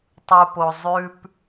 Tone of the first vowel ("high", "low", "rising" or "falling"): low